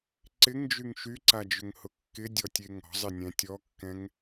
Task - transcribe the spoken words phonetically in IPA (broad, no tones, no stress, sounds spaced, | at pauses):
ǀ ɪ ŋ d͡ʒ y ŋ ʃ y ǀ a d͡ʒ ʏ ŋ h ʊ kː ɪ dʲ ɔ tʲ e ŋ ɔ̤ zˤ ɪ nʲ ɛ̃ tʲ ɔ kː ɛ̃ ŋ